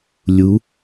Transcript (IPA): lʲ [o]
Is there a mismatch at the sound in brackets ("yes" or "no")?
yes